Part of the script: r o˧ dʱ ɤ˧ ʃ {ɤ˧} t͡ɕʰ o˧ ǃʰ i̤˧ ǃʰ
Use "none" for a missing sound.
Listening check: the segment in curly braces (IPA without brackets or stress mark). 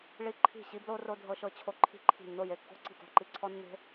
ɤ˧